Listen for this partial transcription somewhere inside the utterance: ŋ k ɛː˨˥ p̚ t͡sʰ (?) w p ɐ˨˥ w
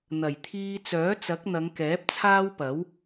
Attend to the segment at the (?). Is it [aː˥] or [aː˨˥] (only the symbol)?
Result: aː˥